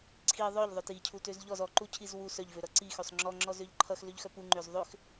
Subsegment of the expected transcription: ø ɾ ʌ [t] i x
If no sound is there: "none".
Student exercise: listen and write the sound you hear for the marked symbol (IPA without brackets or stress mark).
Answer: ǀ